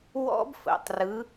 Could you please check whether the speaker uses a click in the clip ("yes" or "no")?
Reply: no